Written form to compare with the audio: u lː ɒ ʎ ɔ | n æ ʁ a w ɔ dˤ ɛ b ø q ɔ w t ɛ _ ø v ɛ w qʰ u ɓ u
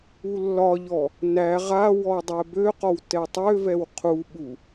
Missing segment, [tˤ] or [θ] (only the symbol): tˤ